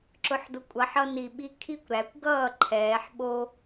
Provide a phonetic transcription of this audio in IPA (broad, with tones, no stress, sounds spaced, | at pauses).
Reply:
ǁ ʊ˩˥ ħ d ʊ˩˥ kʷʼ ʌ˩˥ ħ ʌ˦ n i˧˩ ɓ i˦ kʰ i˦ kʷ ɾ æ˩˧ kʷ ɡ ʌː˥˩ ǃʰ ɛː˩˧ ħ ɓ o˦